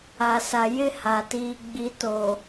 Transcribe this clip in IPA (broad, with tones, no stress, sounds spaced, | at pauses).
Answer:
a˨ s a˨ j ɪ˦ h a˨ t iː˦ ɡ͡b i˦ t o˨